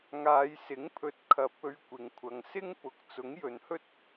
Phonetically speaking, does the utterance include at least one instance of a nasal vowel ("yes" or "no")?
no